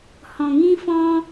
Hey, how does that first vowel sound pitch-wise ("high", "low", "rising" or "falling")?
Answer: low